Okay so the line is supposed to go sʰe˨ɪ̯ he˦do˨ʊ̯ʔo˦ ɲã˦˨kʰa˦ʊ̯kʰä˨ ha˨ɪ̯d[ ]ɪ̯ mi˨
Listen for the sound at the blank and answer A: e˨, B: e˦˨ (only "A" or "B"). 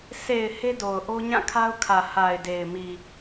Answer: A